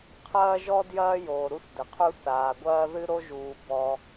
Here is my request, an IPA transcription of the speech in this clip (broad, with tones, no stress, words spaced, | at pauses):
qʰɐː˥ʒɔ˥ djɐː˥joː˩ ɾu˥θdɘ˩qʰu˥ θaː˩ɡʷɐː˥ðɨ˥ ɾo˥ʒuː˩ bɔ˩